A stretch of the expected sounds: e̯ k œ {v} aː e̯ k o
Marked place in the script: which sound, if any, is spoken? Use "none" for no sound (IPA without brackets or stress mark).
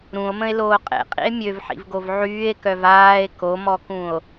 v